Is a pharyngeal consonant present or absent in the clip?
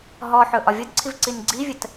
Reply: present